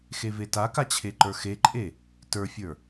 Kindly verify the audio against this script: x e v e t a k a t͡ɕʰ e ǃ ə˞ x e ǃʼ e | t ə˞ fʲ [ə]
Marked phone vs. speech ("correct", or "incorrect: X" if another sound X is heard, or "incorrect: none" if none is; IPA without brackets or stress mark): incorrect: ə˞